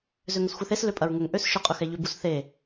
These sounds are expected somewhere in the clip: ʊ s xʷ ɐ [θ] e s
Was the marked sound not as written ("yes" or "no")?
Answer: no